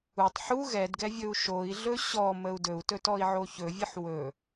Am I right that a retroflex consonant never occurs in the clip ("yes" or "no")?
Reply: yes